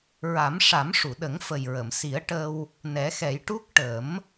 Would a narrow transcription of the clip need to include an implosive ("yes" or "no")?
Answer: yes